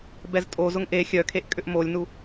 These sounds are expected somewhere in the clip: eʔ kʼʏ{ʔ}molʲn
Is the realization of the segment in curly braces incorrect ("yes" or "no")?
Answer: no